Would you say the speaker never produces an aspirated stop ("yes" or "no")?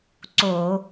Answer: yes